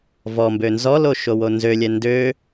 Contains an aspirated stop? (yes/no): no